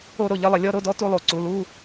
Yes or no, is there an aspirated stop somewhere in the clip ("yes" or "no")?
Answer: no